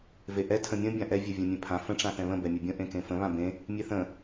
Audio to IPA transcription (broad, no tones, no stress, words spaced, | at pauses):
veʔɛ tʰə̃mʲə̃ bʲãʔɛ vʲɛvʲɛ̃mʲẽpʰã fə̃ ʈ͡ʂãθɛ̃βə̃ bɛmʲɵbʲə̃ ʔẽkẽfə̃ βãbẽ | mʲeθə̃